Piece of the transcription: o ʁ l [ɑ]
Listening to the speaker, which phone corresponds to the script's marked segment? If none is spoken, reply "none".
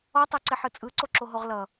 ʌ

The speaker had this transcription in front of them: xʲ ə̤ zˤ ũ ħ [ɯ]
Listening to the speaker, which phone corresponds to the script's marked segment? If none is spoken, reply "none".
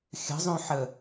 ə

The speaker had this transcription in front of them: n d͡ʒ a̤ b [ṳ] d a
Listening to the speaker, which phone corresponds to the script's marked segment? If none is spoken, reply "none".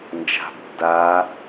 o̤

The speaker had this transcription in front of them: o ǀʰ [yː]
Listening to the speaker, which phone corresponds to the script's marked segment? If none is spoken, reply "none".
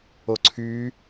yː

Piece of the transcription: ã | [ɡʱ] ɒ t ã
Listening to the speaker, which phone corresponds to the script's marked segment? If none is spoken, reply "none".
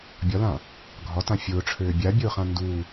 ɡʱ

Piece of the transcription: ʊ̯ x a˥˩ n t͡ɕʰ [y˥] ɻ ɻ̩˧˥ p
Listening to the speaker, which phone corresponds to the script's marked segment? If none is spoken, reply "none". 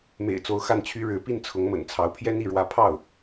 y˥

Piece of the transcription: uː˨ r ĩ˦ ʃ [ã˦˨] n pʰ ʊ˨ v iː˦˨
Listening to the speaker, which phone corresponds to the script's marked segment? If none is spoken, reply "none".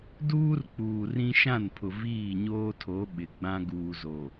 ã˦˨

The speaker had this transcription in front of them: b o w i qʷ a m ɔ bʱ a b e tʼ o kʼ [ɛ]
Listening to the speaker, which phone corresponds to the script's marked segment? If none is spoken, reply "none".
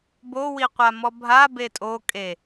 e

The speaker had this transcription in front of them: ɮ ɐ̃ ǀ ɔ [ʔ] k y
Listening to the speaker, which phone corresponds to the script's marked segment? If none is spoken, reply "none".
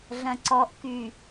ʔ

